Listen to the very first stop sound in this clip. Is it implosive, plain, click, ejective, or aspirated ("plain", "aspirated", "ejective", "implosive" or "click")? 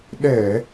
implosive